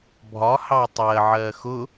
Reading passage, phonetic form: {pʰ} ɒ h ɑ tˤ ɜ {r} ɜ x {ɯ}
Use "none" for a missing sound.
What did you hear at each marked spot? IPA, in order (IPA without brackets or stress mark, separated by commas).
bʱ, ʕ, ʊ